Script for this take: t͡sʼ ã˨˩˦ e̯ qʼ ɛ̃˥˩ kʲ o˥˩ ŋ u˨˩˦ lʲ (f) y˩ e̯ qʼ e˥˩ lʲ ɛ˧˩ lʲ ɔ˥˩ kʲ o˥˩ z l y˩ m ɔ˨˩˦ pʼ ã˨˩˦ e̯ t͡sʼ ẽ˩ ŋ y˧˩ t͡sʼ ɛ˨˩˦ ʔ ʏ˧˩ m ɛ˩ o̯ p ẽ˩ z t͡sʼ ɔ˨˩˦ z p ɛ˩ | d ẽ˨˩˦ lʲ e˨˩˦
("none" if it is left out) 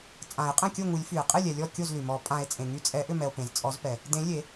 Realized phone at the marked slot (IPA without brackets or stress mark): f